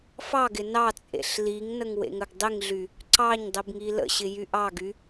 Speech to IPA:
f ɑ ɡ ɪ n ɑ t͡sʼ ḛ ɬ l i ŋ n ə ŋ w ḛ ŋ ə ɡ dˤ i ŋ ɮ y | ǀ ɑ ɲ dˤ i b ŋ i l ə̰ ɕ ɪ j y ʔ ɑ ɡ y

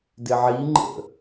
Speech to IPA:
d ɪ ʕ i ŋ͡ǃ ə̰

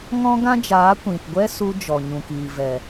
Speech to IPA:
ŋ ɔ̃˦ ɡ ã˦ d͡ʒ aː˨˦ kʷ ĩ˨ t ɡʷ ɛ˦ s u˧ d͡ʒ ɔ˨ ɲ ũ˨ k iː˨ v ɛ˨

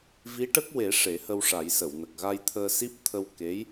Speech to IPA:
v i˧˥ ʈ ə˦˥ k̚ w e˨˩˦ ʂ e˨˩˦ h ə˧ w ʂ a˨˩˦ j s ə˨˩˨ w n ə˨˩ k̚ ɣ a˧ j t̪ʰ əː˧ s i˦˥ p̚ t̪ʰ ə˧ w k e˧˥ j

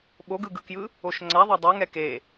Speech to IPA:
ɓ o ɡ ɯ ɡ ɯ k j ɯ | o ʃ ŋ͡ǀ a ðˤ a dˤ ʌ ŋ ɛ k e

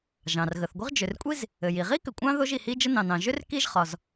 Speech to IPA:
ʒ ɑ̃˩ r ɣ ə˩ θ ɡʷ ɘ˥ ʁ d͡ʒ ʏ˩ r kʷʼ i˥ z | ɘ˩ j i˩ ʁ i˥ k ʏ˩ kʷʼ ɑ̃˥ ð o˥ ʒ i˩ h i˥ d͡ʒ ə˥ n ɑ̃˩ n ɑ̃˩ ʒ ʏ˥ r k i˥ ʒ χ ɒ˩ z

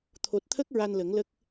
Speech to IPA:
t̪ʰ o˨˩ t̚ t̪ʰ ə˦˥ k̚ ɹ a˧ n l ə˨˩˦ ŋ l ə˦˥ k̚

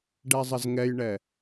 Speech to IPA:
ɖ ɛ zˤ ə z ŋ ɛ j ɳ ɛ

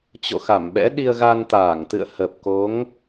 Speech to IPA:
t͡ɕ o̰˧˨ x a˧˩ m ɓ ɛ̰˧˥ ɗ i˧ ə̯ ɣ a˧ n t̪ aː˧˩ ŋ t̪ ɨ̰˧˨ ə̯ h ə˨˩ p̚ k o˨˦ ŋ

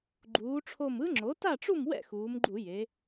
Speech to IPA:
ɡ͡ǃ uː˩˧ ʈ͡ʂʰ o˧˩ m ɯ˦˥ ŋ͡ǁ o˩˥ t a˥˨ ʈ͡ʂ u˥˨ m w ɛ̰˥˨ x uː˩˧ m ɡ͡ǃ u˧˩˧ j e˩˧

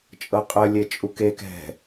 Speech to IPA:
t͡ʃʼ ɤ qʼ ə lʲ e t͡ʃʼ u k e k ɛ̤

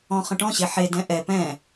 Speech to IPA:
ɔ̃ χ ə̃ ʈ ɔ̃ ɕ e ħ e d ɛ̃ ʔ ɛ p ɛ̃

